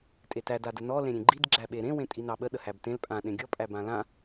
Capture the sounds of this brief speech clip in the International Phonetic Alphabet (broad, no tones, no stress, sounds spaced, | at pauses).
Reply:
tʼ e t æ d a d ə n ɔ l ẽ ɾʲ ẽ ɡ͡ǃ i d ɡ͡ǁ æ ɓ e ɾ ẽ w ẽ tʼ i n ɑ ɓ ə ɗ ə h æ b t ẽ l pʼ ã ɗ ẽ ɡʲ ɔ pʼ æ b ã l ã